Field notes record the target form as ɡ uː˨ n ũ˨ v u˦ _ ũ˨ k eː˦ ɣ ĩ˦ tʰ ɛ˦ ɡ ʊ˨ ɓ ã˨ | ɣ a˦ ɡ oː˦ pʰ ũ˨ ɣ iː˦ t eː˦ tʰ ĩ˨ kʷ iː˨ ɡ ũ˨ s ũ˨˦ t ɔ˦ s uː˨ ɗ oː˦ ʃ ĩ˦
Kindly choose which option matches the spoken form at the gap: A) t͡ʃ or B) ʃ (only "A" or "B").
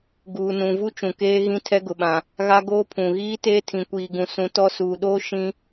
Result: A